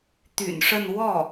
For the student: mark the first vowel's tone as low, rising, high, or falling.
low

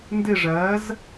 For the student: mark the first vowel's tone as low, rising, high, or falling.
falling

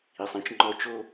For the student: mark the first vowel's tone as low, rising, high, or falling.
low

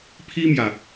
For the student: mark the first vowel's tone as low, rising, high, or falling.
high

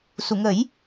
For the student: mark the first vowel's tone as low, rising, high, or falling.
low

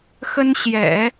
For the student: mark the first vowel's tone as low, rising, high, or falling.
high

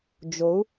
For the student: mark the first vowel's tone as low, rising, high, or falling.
rising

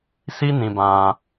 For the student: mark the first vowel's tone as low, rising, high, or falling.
high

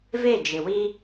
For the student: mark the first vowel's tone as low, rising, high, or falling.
falling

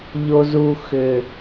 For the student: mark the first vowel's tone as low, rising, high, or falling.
low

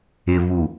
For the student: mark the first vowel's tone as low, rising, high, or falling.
low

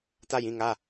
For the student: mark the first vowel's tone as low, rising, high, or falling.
falling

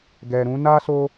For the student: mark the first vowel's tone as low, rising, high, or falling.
low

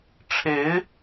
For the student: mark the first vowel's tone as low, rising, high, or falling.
rising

